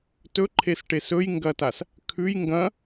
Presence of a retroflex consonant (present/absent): present